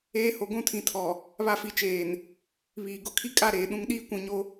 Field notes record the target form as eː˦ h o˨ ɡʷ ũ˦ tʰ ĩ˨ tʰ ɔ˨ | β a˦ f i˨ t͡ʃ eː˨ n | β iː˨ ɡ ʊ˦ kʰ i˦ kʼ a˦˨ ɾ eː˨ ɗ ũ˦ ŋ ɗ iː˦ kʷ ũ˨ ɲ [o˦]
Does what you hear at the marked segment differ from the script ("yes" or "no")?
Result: no